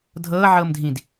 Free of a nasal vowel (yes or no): no